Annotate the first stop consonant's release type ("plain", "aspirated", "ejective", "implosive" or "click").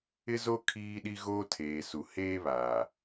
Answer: aspirated